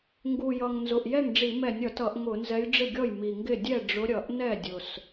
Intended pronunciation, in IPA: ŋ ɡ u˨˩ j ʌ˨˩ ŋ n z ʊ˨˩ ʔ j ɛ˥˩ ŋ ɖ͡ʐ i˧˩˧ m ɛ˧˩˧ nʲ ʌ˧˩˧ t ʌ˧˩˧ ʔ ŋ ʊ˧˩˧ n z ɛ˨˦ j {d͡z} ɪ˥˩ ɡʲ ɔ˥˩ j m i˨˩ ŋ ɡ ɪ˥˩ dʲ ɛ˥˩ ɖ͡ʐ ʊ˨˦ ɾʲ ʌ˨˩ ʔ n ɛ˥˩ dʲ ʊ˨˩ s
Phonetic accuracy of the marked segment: incorrect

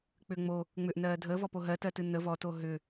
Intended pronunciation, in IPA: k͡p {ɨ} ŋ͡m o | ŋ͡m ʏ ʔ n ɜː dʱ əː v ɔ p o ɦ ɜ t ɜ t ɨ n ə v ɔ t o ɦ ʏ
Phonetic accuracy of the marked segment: incorrect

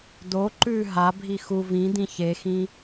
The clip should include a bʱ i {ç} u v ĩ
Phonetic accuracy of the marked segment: incorrect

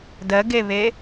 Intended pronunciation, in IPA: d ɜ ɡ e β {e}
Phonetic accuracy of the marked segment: correct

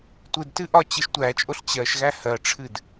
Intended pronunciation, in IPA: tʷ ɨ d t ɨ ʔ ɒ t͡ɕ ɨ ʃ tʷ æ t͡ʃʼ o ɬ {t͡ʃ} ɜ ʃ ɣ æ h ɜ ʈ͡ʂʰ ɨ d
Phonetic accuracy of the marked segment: incorrect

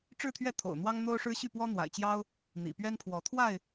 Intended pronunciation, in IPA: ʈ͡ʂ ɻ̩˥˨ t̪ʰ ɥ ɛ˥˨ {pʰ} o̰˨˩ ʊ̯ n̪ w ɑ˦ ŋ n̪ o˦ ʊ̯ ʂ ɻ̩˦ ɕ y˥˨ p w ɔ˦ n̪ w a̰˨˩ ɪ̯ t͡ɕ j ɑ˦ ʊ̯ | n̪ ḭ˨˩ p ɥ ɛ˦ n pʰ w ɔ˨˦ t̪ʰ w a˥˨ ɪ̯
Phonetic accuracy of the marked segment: incorrect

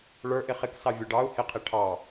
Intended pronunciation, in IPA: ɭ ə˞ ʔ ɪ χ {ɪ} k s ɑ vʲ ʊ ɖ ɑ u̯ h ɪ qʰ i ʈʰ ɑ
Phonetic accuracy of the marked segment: correct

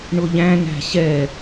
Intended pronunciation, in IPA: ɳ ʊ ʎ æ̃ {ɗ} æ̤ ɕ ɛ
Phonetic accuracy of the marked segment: incorrect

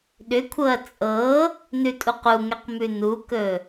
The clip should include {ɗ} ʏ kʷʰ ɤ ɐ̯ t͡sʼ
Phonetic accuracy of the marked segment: correct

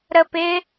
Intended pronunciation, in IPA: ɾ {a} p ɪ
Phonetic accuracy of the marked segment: incorrect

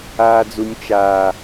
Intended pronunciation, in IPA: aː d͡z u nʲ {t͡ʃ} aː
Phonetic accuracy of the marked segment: correct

